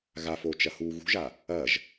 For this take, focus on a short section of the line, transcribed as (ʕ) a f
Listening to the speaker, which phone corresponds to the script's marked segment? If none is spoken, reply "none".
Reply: ɣ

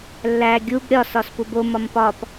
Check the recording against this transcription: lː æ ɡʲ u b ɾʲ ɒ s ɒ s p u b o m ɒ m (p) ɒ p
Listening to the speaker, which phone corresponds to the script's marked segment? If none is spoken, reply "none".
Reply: p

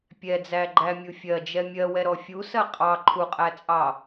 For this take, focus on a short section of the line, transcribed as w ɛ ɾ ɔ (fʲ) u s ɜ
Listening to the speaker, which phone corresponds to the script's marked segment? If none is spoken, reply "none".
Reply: fʲ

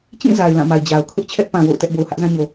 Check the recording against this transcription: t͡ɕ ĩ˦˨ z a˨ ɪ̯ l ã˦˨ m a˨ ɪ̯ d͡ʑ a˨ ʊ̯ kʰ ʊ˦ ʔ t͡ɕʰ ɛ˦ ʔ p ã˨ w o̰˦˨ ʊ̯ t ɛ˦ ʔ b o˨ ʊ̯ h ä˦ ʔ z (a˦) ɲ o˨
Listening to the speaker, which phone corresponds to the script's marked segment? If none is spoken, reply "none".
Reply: ã˦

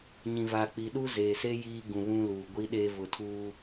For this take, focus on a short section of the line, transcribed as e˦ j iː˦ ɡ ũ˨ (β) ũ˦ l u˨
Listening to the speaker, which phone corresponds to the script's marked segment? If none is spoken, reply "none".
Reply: β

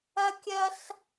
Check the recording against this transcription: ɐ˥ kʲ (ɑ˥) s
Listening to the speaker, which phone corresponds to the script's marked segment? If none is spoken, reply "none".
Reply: ɐ˥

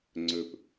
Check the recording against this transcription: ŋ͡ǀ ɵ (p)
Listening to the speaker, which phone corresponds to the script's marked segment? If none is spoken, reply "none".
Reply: p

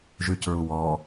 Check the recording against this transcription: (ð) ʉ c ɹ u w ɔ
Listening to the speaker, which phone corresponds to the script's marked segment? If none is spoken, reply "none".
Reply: ʒ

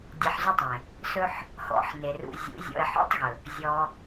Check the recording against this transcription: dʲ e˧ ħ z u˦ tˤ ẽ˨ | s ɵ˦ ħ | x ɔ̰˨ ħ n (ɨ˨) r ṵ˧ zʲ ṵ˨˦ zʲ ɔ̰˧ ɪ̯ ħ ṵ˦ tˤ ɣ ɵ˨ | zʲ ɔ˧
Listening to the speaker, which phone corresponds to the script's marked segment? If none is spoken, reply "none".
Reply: e˨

